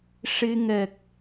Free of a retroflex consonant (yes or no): no